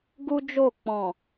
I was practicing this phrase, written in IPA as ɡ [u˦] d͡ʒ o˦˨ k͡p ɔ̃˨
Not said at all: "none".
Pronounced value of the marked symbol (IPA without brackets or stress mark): u˦